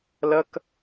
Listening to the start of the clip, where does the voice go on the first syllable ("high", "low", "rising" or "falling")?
high